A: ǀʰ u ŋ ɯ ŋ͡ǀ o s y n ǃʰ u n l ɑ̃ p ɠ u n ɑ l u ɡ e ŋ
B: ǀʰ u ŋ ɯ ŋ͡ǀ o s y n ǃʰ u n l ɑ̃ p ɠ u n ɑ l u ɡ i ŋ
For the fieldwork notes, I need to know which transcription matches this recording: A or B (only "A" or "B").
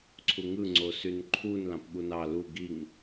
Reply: B